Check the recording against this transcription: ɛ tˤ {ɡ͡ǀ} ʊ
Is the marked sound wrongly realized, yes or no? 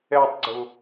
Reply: no